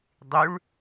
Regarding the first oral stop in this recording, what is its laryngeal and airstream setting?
plain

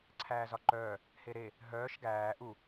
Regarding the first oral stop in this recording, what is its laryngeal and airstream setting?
click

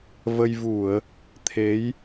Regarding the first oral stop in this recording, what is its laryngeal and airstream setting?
aspirated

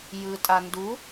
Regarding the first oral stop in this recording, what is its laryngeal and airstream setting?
ejective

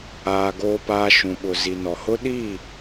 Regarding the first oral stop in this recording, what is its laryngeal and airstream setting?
plain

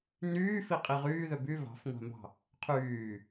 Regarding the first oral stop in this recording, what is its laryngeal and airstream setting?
ejective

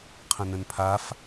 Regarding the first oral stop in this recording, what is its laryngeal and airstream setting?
aspirated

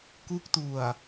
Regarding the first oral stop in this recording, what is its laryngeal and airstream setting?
plain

